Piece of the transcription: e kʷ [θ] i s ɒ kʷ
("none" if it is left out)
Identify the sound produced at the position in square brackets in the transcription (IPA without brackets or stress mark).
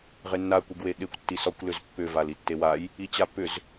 tː